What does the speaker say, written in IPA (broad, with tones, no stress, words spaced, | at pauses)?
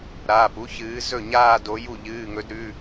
ɾaː˩˧˩pu˦˥ çɨː˨˦zɵ˥˩ɲaː˥˧ do˨˦ju˥˩ ʎɨː˩˧˩ŋɵ˨˦dɾʉ˩˧˩